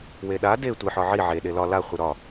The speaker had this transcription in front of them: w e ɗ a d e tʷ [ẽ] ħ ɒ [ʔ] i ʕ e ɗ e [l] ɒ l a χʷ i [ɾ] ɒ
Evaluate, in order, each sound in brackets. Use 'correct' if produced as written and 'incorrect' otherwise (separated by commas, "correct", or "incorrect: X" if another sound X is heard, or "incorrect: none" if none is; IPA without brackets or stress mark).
incorrect: e, incorrect: ʕ, correct, correct